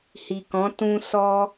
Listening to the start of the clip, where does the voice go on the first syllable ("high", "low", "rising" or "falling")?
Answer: low